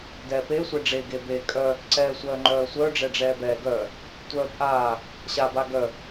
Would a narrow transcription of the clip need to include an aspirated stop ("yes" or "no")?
no